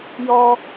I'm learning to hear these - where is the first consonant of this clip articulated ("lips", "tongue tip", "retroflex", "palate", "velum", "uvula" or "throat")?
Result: palate